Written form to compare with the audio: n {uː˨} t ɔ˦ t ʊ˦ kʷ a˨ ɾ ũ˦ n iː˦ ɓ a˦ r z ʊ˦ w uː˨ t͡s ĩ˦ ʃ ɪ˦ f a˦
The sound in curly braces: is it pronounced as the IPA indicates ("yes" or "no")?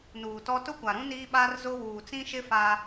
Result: yes